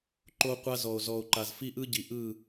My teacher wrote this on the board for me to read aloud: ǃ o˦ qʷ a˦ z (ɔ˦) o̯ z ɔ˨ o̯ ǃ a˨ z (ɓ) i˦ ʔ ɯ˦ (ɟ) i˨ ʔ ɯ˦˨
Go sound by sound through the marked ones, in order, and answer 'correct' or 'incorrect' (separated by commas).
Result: incorrect, incorrect, correct